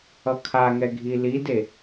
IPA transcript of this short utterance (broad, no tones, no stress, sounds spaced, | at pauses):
ʌ kʰ a ŋ ɛ ɡʱ i l i d e